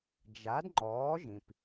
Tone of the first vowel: rising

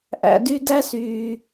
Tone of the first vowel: low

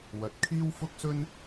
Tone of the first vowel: low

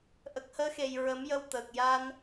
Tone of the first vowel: low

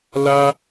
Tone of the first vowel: high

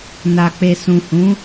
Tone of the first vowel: low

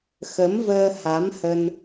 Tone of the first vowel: rising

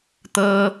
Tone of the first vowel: high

